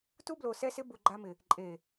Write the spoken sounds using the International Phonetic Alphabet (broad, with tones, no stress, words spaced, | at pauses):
tu˦blo˨sɛ˦sɪ˦ bu˨ ɡ͡ǃa˦mɪ˨ | ǃʼe˨